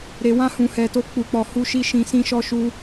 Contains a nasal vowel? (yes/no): yes